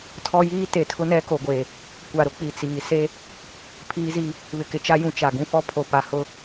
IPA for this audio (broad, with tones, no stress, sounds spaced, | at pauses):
tʰ ɔ˦ j iː˦ t e˨ tʰ ʊ˦ n ɛ˦ k o˨ ɡʷ e˨ | kʷ a˨ ɾ ʊ˦ k͡p i˨ t͡s iː˨ s e˦ | pʰ iː˦ z i˦ | β ɪ˨ k ɪ˨ t͡ʃ a˦ j ũ˨ t͡ʃ a˨ ɡ ũ˦ f ɔ˦ pʰ o˨ p a˨ h ʊ˦